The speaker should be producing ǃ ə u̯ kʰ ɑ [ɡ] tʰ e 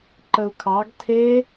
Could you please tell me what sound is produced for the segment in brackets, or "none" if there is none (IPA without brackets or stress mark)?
ɡ